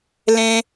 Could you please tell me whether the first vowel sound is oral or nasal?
nasal